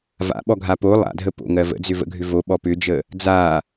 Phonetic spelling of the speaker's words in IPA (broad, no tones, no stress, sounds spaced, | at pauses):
v a̰ ɓ ɔ ɡʱ a p o lˠ a̰ dʱ ə p o̰ ŋ ɜ v ə̰ d͡z ʏ v ə̰ ɡʱ ʏ v o ɓ ɔ p ʏ d͡ʒ ə | d͡z a